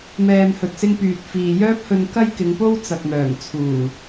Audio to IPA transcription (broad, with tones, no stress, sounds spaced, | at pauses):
m ɛː˨ m h ɵ˨ t̚ s ɪ˧ ŋ p yː˨ t̚ f iː˨ j œː˥ p̚ h ɵ˧ n k ɐ˥ j k ɪ˨˧ ŋ p o˥ w t͡s ɐ˨ k̚ m œː˨˩ ŋ t͡sʰ uː˨˩